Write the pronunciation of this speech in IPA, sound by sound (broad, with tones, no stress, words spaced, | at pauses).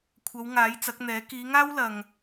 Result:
kʷʰɐ˨˧w ŋaː˨˥jt͡sɐ˨˥k̚n̪ɛː˨˥ kiː˨˧ŋaː˥w lɐ˧ŋ